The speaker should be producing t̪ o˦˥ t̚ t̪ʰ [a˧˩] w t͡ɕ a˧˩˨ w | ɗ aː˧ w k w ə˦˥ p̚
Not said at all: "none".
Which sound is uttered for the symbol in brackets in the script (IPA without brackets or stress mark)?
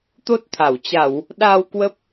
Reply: a˧˩